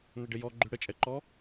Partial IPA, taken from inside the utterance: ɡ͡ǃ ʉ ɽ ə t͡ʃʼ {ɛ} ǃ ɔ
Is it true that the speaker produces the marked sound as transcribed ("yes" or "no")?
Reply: yes